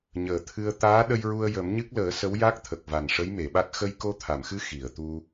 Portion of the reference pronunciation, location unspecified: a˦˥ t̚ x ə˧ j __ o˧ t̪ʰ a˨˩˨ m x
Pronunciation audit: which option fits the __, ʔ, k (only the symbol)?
k